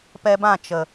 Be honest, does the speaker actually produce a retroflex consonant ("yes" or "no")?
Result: no